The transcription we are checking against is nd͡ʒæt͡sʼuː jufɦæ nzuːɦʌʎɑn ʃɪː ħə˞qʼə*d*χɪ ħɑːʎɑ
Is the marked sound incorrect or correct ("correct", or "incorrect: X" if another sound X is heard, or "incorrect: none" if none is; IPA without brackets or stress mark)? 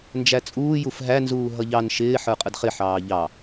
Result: correct